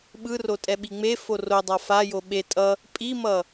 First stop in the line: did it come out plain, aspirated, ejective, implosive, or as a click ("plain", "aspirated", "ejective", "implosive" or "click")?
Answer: implosive